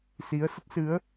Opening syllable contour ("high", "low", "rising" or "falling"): rising